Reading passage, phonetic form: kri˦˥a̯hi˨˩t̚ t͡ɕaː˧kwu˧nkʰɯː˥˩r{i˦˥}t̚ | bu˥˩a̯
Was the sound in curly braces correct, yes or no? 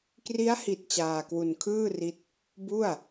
yes